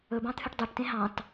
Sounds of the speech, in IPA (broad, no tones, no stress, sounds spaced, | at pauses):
ɵ b ɑ̃ t̪ʰ ʉ ʈ dˤ ø ʈ t ẽ ɦ ɑ̃ t